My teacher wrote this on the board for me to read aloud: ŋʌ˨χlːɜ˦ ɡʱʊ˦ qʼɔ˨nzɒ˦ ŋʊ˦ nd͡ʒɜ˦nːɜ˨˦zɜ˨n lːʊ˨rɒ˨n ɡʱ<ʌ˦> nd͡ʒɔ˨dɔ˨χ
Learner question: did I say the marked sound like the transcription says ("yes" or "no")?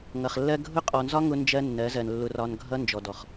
yes